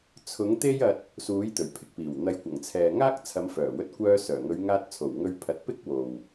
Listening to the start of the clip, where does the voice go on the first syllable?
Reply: rising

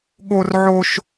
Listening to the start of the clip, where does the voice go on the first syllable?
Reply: high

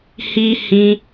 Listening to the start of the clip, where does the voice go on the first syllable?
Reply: high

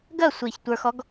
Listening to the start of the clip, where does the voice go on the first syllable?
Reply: falling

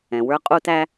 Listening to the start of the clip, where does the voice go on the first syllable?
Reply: low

